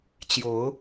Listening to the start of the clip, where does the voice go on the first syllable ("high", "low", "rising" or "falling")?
rising